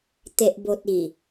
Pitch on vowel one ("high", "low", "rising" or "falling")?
low